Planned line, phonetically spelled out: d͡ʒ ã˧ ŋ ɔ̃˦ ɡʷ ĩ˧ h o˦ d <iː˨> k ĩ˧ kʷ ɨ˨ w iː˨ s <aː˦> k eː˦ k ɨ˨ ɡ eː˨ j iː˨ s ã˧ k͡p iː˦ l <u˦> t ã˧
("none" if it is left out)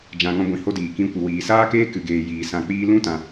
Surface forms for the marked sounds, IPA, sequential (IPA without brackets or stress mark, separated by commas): iː˨, aː˦, ũ˦